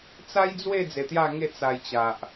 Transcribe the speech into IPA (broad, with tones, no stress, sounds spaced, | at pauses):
t͡s a˦ j d͡z w e˥˧ d͡z e˧ t̪ j a˥˧ ŋ e˥˧ t͡s a˧ j t͡ɕ a˨ ʔ